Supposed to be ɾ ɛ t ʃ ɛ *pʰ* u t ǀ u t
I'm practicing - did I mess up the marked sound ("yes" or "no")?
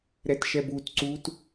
yes